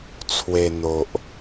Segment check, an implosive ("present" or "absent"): absent